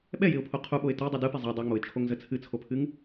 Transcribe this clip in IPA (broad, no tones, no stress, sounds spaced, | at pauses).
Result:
ɓ ɛ j ɪ ʊ̯ pʰ o qʰ u ɓ o ɪ̯ t ə j dˤ u d ɯ p ɪ zˤ ɛ dˤ ɨ ŋ͡m o ɪ̯ t͡ʃʰ o ŋ z ə t͡sʰ ɨ t͡sʰ o pʰ ɨ ŋ